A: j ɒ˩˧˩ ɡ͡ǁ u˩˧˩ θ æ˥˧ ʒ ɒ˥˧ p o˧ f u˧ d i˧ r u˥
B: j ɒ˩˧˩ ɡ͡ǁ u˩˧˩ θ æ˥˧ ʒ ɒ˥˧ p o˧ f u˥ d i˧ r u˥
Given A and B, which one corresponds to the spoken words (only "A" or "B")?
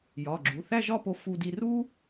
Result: A